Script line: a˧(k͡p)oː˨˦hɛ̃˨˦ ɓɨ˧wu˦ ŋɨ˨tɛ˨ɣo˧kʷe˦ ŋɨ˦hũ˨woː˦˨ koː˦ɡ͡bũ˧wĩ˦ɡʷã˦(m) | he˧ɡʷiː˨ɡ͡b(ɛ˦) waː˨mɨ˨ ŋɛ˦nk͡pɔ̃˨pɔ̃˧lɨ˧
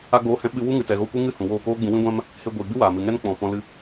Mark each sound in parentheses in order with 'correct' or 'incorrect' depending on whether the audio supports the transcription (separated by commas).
incorrect, correct, incorrect